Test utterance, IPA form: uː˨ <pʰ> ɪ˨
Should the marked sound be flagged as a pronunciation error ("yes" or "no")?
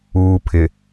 no